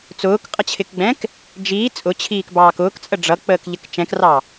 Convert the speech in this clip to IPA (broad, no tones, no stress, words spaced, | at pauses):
t͡sʊːkqʼʌt͡ɕʰɪkɡ͡bɛ̃k | d͡ʒiː t͡sʼʊt͡ɕʰiːkbɑːk ʊːkt͡sʼə ɖ͡ʐʌk͡pəːkʎək t͡ʃɛ̃krɑ